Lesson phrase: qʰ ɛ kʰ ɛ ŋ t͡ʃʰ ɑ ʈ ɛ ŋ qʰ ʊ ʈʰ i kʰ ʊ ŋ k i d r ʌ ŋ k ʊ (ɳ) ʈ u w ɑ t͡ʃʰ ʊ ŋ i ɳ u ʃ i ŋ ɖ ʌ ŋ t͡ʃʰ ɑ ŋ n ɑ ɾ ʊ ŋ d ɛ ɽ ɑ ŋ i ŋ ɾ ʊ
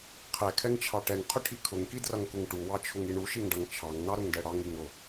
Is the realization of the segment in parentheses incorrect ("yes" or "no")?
yes